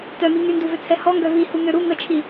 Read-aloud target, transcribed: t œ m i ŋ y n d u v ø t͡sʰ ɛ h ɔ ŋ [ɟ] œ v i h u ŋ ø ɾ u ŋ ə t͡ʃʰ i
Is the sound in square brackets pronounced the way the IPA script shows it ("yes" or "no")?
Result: no